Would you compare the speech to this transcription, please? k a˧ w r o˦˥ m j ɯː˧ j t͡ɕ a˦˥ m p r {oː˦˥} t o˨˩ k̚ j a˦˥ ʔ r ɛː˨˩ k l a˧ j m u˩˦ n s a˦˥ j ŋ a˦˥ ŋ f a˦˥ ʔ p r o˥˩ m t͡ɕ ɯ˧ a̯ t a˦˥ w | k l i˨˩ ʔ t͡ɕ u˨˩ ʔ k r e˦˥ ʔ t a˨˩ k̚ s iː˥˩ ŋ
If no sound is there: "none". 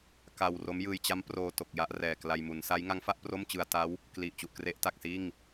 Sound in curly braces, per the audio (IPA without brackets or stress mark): oː˧